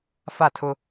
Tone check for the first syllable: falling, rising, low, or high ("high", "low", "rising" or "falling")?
falling